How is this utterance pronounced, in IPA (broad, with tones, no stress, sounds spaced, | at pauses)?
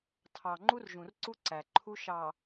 tʰ ɑ˨ ŋ͡ǃ u˦ r ʒ ũ˨ r ǀ u˦ ǀ æ˨ ǃʰ u˦ ʃ ɑ˨